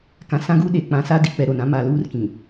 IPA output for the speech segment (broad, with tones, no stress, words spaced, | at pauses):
kã˨sã˦ɡuː˦ ɗe˨ k͡pã˨sa˦di˨k͡pɛ˨ ɾo˨nã˦ ma˨luː˦rkĩ˨